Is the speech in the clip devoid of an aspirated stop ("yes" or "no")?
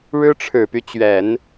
no